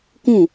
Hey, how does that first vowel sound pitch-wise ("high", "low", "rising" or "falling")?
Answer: falling